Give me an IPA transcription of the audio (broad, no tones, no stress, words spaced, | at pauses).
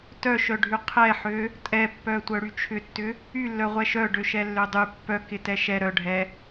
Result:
tœʃœɖʱy qʰɛħø | tʼɛpːœtʷœɽy t͡ʃʰʏtːʏ | ylːœʁʷɛ ʃœɖøʃɛlːø dˤy pːœkɪtɛ ʃɛ ɾœɖʱɛ